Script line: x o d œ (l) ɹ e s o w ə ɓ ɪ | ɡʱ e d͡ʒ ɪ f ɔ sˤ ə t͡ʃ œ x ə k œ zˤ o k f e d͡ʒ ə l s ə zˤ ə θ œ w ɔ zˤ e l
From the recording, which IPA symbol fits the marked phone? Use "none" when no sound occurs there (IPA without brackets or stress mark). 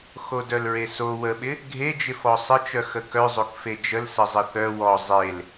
l